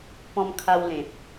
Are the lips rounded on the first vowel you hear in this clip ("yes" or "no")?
yes